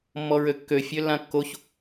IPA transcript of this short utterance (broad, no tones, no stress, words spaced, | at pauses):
mːɔɹøkːø fʲølːãkːoç